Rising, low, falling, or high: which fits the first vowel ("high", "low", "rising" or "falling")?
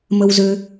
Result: high